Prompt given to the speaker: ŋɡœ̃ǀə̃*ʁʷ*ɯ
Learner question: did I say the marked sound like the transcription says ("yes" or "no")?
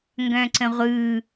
yes